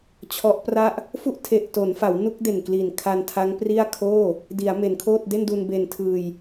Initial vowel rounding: rounded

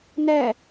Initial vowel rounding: unrounded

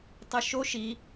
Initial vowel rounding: unrounded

